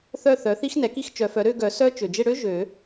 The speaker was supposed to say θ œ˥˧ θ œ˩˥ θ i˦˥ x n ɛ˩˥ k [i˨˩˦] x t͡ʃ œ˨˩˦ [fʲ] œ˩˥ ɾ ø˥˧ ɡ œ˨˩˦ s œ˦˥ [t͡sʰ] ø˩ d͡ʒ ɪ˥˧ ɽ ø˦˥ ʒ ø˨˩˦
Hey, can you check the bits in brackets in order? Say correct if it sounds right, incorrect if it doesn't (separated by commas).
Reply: incorrect, incorrect, incorrect